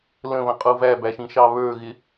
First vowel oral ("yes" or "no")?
no